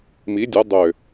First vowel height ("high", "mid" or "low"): high